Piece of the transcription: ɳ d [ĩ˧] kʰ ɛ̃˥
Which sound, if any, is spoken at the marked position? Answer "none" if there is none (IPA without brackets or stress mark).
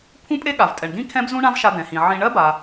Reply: ĩ˥